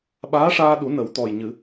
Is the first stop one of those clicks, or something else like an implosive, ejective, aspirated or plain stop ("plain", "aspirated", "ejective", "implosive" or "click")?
implosive